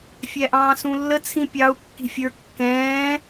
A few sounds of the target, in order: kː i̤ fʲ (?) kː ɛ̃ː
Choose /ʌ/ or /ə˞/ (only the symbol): ə˞